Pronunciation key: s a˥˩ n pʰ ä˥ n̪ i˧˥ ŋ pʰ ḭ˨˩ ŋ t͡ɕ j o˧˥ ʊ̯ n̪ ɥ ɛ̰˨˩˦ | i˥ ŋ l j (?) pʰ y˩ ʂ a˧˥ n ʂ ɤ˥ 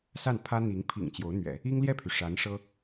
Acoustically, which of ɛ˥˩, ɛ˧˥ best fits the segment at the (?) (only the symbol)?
ɛ˥˩